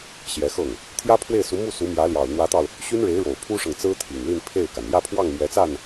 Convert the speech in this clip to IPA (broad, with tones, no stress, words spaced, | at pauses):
ɕjɛ˧˥xɤ˥˩ŋ | t̪ʰjä˥pʰwe˥˩ɪ̯su˧˥mu˥˩ su˧˥mjä˧˥ljɑ˨˩ʊ̯ n̪wä˧˥t̪ɑ˧ʊ̯ | ɕy˥nɻe˧˥ɪ̯ ɻo˨˩ʊ̯ pʰu˥ʂɤ˨ŋt͡sɹ̩˥ t̪ʰi˨˩ŋli˥˧npʰe˥˩ɪ̯ka˩n jä˥˧pʰwɑ˥˩ŋ mɥɛ˧˥t͡sa˥˩n